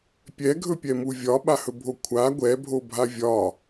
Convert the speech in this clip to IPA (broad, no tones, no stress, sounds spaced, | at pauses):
pʲ ɛ ɡʱ ɵ pʲ ɛ m u vʲ ɒ ɓ a h ɵ bʱ o kʷʰ a ɡʷ ɛ bʱ o bʱ a vʲ ɒ